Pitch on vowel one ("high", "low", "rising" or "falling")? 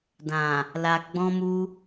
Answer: low